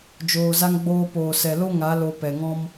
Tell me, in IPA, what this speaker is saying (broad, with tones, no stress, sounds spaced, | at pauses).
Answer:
d͡ʒ oː˧ z a˦ ŋ ɡ͡b oː˦ p oː˧ s ɛ˧ l o˦ ŋ a˨˦ l o˧ p ɛ˨ ŋ ɔ̃˦ m